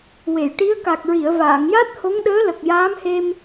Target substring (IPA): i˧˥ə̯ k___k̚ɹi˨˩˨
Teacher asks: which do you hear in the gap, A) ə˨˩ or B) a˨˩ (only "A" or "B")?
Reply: B